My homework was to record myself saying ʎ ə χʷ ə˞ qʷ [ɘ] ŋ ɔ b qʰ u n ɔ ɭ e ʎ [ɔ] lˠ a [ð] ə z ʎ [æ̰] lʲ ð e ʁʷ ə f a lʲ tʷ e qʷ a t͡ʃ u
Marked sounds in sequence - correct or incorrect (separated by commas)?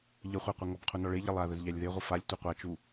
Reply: correct, incorrect, correct, incorrect